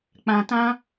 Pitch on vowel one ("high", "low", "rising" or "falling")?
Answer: low